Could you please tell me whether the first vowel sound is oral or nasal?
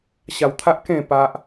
oral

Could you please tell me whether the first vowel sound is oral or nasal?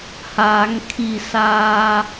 oral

